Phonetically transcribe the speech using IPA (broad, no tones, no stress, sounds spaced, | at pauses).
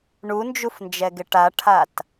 ɳ u n d͡ʒ u f n d͡ʒ ɛ ɡ ɪ ʈ a ʈʰ a t